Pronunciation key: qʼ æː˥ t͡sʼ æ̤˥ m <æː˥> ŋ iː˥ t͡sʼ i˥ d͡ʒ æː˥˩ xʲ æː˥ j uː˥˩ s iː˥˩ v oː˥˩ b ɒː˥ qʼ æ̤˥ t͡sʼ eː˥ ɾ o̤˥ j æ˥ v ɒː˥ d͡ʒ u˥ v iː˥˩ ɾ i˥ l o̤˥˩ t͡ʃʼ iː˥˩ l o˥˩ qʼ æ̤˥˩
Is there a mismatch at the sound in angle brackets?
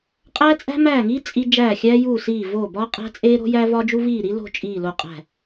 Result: yes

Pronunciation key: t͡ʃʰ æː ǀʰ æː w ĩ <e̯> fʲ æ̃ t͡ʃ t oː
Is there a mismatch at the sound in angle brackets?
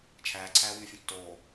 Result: no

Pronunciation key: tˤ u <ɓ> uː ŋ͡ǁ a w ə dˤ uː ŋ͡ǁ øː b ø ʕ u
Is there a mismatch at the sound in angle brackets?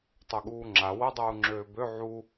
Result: yes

